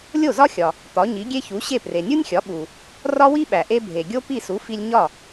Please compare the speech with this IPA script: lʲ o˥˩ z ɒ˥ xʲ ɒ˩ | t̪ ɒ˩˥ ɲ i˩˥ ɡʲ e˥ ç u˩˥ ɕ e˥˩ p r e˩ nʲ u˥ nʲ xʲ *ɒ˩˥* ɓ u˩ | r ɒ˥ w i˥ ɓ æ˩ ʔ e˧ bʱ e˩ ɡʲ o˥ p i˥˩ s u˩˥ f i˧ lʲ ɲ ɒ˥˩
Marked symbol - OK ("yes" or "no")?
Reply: yes